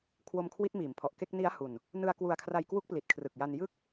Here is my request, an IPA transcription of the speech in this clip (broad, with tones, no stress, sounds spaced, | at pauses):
kʰ w o˧ m kʰ w i˦˥ t̚ m iː˩˦ m pʰ ɔ˨˩ ʔ k e˥˩ k̚ n i˦˥ a̯ h u˧ n | n ɯ˧ a̯ k w u˧ a̯ kʰ r a˧ j k w u˦˥ k̚ p l i˨˩ t̚ kʰ r ɯ˨˩ k̚ j a˧ n j ɯ˥˩ k̚